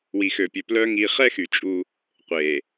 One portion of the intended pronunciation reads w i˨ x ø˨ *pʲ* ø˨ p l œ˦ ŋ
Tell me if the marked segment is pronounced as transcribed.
yes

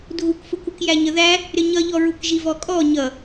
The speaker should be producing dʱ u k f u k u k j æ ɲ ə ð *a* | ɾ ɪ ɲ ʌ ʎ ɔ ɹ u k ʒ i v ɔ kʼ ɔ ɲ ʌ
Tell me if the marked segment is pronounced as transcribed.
no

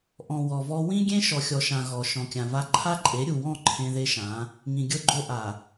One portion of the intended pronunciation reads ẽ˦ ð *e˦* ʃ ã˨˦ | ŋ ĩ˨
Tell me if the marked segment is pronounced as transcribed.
yes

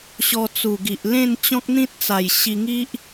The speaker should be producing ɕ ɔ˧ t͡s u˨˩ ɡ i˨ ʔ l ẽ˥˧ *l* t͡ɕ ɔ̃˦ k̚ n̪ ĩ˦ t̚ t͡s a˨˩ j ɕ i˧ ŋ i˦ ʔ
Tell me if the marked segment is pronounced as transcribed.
no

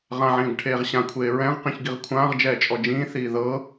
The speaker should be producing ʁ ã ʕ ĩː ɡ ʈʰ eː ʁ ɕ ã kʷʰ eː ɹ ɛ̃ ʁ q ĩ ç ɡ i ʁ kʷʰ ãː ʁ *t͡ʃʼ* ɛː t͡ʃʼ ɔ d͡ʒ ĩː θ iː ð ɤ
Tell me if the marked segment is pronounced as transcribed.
no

